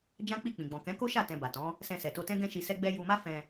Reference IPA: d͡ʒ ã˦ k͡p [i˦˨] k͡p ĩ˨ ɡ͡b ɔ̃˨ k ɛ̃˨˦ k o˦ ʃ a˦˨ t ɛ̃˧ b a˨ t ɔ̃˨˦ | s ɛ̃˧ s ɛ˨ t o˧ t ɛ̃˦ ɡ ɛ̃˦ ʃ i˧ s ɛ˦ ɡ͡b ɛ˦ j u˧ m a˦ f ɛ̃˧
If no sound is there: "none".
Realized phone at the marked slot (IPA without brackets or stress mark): i˦˨